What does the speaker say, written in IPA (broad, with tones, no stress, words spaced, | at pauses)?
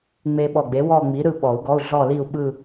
ŋ͡me˧ɓɔ˧˩ ɡ͡be˨˥wɔ˥˧ŋ͡mi˨˥ ɾɯ˥˧ɓɔ˨˩˦u̯ɡɔ˧˥˧u̯ ɮɔ˥˧li˥˧u̯ɓɯ˥˧